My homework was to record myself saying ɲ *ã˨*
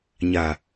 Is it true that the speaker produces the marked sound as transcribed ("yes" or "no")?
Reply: no